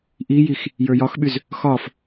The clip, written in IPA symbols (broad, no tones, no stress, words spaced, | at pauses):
ʔijix | jə˞jɒxɓyz | xɒf